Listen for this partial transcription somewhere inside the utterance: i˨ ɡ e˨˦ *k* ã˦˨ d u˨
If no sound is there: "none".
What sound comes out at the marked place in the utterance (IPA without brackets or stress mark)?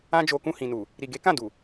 k